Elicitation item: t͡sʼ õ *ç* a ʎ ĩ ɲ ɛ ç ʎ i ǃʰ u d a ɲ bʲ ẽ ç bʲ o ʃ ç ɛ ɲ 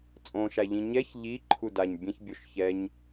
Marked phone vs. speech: incorrect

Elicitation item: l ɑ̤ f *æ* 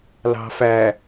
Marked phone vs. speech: correct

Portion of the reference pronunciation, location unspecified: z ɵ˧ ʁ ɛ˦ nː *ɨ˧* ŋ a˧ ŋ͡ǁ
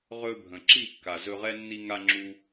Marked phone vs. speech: incorrect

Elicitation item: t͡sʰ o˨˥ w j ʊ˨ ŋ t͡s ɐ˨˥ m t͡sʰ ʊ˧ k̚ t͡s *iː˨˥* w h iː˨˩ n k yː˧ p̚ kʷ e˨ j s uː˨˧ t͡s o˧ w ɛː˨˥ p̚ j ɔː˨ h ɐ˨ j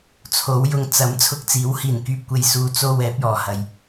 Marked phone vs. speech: correct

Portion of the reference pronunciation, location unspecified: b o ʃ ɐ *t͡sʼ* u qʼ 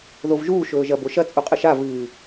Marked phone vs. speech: correct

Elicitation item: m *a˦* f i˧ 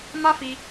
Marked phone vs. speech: correct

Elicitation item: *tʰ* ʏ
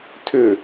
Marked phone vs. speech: correct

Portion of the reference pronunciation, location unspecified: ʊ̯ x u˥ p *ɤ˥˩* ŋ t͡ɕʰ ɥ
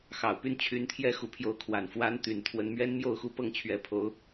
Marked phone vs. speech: correct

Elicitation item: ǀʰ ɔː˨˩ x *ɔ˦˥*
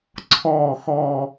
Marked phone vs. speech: incorrect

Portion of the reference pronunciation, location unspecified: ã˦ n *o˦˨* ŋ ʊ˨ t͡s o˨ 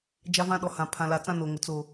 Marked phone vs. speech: incorrect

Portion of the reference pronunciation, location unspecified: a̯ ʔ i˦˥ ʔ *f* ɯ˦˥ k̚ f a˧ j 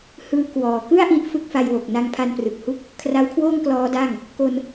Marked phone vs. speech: correct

